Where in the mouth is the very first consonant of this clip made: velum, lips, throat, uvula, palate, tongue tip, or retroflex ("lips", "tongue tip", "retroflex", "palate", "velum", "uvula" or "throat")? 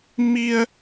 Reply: lips